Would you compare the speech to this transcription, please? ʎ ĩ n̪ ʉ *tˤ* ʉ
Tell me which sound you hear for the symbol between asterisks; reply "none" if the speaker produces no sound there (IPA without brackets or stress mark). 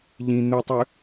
tˤ